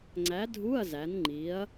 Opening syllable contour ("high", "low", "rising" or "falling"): rising